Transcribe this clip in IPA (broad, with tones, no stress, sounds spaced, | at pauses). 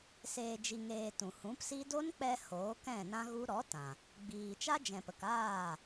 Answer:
s eː˨ d͡ʒ i˨ ŋ eː˨ t ũ˨ h ũ˨˦ p s i˦ d o˦ n k͡p ɛ˧ h oː˨˦ k ɛ̃˦˨ n ã˦ ɣ u˦ ɾ ɔ˨˦ t ã˨ | ɡ͡b iː˨ t͡ʃ a˦ d͡ʒ ɛ̃˨ p ə˨ k aː˦˨